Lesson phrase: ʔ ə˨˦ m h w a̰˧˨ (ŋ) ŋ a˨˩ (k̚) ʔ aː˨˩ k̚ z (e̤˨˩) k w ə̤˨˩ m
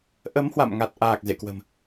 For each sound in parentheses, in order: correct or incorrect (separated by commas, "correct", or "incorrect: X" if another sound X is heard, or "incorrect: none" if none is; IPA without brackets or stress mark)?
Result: incorrect: m, incorrect: t̚, incorrect: ḛ˧˨